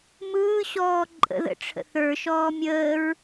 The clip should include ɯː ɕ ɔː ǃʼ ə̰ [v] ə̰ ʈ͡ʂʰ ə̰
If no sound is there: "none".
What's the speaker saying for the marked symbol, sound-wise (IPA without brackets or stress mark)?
ð